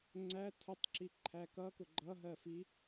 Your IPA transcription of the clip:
ŋ͡ǀæ tʰʊtˤǁiǃʰæ kʌkʊ ɡ͡ǃʌɦɜfi

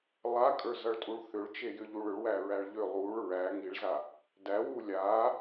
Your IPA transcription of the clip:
lˠakʼə˞zʌɭtʼuɭ θʏɭt͡ʃejʏʎuɭ ʏɭwæɹæɭ ʎʏ lˠuɭ ɹæ ŋiɭza | dæwu lʲa

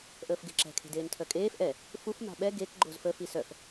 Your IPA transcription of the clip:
ʔəːfɡeǁɛ̤ kʰe̤deːntʰœkʼeːf ʔɛ | fuf ma̤ɓɛ ɡek ɡ͡ǃozfə fisœf

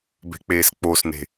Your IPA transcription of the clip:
be̤k͡peːsk͡posne̤

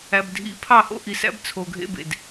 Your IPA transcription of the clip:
æ˨bdʱḭ˨ pʰɑ˦˨ho̰˦ʔi˨sæ̰˦b t͡sʰo˨ɡʱḛ˦bḛ˨d

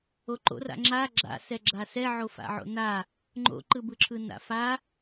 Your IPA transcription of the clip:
oǃo̰ra̰ ŋ͡ǁa ɡ͡ǁa̰sɛ ɡ͡ǁasɛ ʕofa̰ʕo̰na | ŋ͡ǃo̰ǃɯbɯǁʰɯ na̰fa

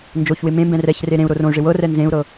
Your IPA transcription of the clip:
nd͡ʒoçwɪ mẽmbɛ̃ rɛçre ɾẽu̯ ɾorõy̯ʐɪ wɤrɛ nzẽu̯ɾɤ

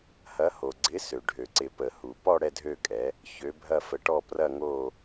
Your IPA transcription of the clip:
hɐ˨˥ho˩ ɡ͡ǀɪ˨˥sø˩ɖʱø˩ǀɪ˨˩˦ pə˩hu˩ pɔ˥˧ ɽɛ˥˧dʱø˥˧kʼɛ˨˥ | çø˨˥ bʱɐ˥˧fə˨˥ʈɔ˥˧ prɐ˥˧ŋo˥˧

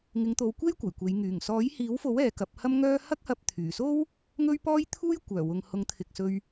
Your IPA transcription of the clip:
ŋɪ˨˧ŋt̪o˨˧wkʷe˥j kʷɐ˨˩jkʷe˨˧j ŋyː˨˩ŋ sɔː˨˥j hiː˨˥wfo˨˥w ɛː˨˧kɐ˨˥p̚hɐ˥mŋœː˥ hɐ˥k̚hɐ˧p̚t̪ʰyː˨˩so˥w | ŋɵ˥ɥpɔː˥jt̪ʰuː˥j kʷœː˨˩wʊ˨ŋhʊ˨˥ŋ t̪ʰɪ˨k̚sɵ˧ɥ

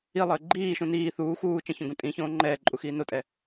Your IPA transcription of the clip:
ilˠəː ɡ͡ǃiːʃũ niː θuː xuː t͡ʃə̃çõɡũ tʼĩçõː ŋ͡ǃɛːǃʼuxiː notʼɛ

